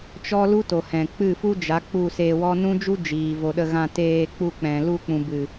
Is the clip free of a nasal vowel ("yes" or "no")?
no